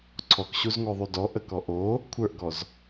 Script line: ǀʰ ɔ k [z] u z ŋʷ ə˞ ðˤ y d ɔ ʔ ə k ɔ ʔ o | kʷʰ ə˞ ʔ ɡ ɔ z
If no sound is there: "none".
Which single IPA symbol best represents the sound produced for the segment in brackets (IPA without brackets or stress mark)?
ɕ